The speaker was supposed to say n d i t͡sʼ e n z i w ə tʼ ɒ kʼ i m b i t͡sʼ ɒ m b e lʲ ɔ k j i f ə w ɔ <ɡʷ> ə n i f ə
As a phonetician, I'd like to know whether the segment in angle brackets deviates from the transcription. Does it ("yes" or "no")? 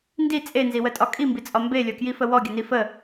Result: yes